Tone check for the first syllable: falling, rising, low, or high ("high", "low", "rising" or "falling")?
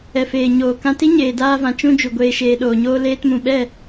low